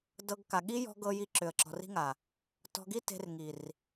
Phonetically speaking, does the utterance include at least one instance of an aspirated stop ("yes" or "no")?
no